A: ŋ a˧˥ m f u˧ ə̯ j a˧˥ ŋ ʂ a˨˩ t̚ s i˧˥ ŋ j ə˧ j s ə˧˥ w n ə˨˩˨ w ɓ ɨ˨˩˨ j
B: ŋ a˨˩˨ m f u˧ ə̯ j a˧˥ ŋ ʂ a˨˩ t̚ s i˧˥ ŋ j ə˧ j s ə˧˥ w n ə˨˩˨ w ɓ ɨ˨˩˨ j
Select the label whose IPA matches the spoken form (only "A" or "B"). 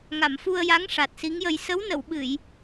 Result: B